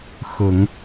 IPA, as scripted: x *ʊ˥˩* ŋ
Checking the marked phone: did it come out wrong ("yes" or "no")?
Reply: yes